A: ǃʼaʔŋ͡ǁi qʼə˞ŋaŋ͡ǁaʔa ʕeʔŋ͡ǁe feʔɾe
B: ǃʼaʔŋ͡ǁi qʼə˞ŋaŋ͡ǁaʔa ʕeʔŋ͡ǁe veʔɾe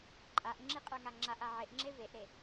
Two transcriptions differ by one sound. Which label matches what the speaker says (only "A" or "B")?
B